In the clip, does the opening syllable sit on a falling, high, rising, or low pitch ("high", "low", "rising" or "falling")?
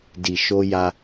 low